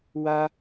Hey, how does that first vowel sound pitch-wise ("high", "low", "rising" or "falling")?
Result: high